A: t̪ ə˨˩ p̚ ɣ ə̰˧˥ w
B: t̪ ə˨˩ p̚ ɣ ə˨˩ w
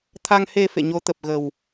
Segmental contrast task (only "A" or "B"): B